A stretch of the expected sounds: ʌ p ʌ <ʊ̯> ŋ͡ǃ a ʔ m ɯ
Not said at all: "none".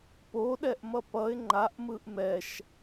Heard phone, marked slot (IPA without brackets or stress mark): ɪ̯